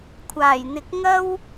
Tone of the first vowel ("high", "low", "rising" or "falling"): low